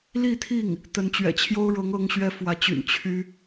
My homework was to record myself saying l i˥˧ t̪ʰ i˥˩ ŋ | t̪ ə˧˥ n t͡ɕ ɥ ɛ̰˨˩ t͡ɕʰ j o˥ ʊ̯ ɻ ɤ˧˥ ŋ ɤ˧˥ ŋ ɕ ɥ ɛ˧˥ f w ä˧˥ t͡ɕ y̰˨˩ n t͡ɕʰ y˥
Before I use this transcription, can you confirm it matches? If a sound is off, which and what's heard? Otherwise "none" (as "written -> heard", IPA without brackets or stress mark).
none